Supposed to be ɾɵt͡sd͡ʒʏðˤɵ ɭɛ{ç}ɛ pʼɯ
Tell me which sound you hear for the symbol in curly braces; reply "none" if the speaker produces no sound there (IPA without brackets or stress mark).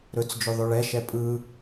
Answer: ʃ